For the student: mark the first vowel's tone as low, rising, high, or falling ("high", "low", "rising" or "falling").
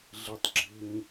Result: low